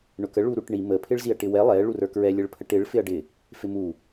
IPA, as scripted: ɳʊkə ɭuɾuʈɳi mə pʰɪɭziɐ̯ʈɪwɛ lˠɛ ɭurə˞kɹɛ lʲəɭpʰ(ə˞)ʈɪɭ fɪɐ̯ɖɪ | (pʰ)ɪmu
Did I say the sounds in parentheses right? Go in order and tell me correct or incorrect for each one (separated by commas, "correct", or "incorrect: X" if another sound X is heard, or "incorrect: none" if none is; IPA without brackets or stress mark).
incorrect: ə, incorrect: f